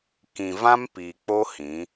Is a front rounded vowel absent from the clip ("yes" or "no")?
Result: yes